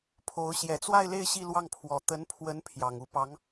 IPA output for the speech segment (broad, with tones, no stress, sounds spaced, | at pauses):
pʰ o˧˥ ʊ̯ ɕ j ɛ˨˩ t͡s w a˥˧ ɪ̯ l e˥˧ ɪ̯ ɕ i˥˧ l w ɑ˥˩ ŋ pʰ w ɔ˧˥ t̪ ə˧˥ n pʰ w ə˧˥ n pʰ j ɑ˨˩ ŋ u˧˥ p ɑ˧˥ ŋ